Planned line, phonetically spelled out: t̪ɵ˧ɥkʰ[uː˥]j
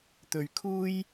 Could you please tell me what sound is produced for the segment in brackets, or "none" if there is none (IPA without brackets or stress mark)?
uː˥